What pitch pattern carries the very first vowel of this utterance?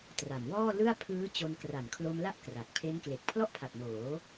low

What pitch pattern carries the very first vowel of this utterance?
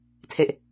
low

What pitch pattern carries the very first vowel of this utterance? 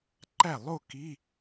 falling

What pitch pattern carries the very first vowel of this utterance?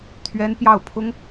high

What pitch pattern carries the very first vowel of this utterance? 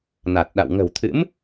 low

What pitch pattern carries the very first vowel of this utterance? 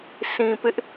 low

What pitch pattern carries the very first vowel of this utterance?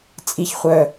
high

